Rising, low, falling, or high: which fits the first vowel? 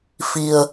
low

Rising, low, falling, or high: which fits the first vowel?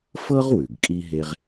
high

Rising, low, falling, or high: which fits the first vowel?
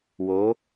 rising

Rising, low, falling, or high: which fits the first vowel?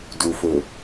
low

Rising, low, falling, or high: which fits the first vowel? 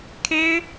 high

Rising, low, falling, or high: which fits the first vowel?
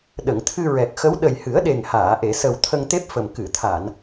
low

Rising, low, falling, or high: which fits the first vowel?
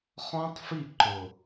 high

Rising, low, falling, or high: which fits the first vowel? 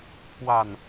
low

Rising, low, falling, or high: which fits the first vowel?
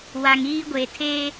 low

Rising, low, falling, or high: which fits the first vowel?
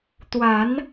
rising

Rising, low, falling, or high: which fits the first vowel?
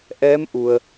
rising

